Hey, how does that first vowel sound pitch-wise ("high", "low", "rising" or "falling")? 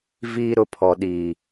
high